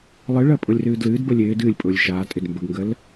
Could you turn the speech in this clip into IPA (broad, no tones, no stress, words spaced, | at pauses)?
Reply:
lˠɨɭɜpʼʊlʲrɨː dlɨːdbəlʲ ɪːd ɨːlʲpʼʊːlʲ ʃaːtʼɪd mbəɡŋɡəl